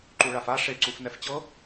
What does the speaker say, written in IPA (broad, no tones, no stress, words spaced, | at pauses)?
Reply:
ǃuɭafa ʂe ǀufnɛft͡ɕɤ